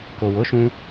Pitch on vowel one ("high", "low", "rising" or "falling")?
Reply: low